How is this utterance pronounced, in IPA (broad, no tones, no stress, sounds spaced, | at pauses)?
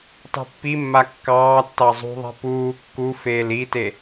tˤ i̤ pː i mː a kː ɑː tː ɑ zˤ ṳ ðˤ e̤ p uː kː u f eː l i t e